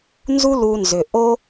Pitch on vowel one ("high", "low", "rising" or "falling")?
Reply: high